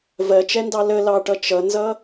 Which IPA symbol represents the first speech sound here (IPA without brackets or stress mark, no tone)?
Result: v